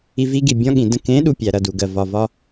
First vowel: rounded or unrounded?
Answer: unrounded